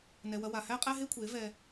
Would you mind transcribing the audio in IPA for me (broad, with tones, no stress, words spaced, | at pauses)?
nɛ˨wɐ˧wa˨ hæ˦qʼæ˦ɦe˦ kʷʰe˨˦vɛ˧